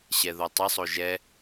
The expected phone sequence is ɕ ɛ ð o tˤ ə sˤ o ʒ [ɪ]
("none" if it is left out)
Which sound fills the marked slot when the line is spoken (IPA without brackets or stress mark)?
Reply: ɛ